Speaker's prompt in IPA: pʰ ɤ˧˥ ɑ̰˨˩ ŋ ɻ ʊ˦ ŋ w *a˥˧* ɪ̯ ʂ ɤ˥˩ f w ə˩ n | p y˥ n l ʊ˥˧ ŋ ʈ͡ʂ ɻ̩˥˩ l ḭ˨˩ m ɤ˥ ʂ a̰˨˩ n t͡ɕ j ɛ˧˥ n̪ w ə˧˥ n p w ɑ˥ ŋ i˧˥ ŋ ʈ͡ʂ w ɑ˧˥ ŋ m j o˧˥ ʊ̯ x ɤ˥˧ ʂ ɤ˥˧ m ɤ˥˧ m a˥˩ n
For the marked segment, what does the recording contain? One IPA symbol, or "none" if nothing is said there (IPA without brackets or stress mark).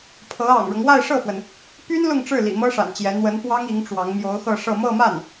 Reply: a˥˧